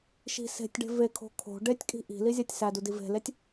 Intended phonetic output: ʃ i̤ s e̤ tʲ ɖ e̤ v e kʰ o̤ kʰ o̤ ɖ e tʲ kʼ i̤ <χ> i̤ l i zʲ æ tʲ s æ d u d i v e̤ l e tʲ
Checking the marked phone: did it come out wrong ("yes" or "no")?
yes